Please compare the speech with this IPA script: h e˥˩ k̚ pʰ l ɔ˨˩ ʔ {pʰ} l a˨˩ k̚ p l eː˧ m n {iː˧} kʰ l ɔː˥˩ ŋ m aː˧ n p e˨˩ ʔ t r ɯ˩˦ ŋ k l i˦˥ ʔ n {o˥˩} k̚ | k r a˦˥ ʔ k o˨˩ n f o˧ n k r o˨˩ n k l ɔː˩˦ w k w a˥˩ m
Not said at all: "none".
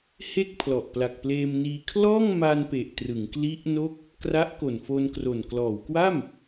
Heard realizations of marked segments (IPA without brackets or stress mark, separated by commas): p, iː˧, o˥˩